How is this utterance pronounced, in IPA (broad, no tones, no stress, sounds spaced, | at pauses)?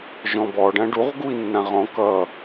ʒ ɔ̃ b ɔ ɖ ã ɖ u ʁ ɡ u i̯ nː ã ʁ ɔ̃ k ʌ